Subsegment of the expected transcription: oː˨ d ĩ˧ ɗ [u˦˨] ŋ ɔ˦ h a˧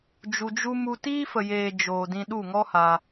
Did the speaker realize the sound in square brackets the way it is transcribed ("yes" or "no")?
yes